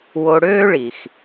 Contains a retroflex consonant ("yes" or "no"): yes